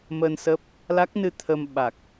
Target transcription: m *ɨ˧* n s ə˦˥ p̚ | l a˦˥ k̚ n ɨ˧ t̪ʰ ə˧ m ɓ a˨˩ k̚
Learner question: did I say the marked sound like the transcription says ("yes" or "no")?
no